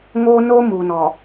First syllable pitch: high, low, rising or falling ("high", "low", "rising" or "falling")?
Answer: high